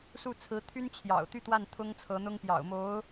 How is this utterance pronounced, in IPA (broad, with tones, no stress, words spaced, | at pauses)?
su˥˩t͡sʰɹ̩˧˥t̪ʰy˥n t͡ɕʰjɑ̰˨˩ʊ̯ t̪y˥˧t̪wa˥˩n t̪ʰʊ˥ŋt͡sʰɤ˧˥n̪ʊ˥ŋ pjɑ̰˨˩ʊ̯mo˧˥ʊ̯